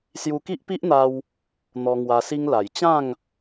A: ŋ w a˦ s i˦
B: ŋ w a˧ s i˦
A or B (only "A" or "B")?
B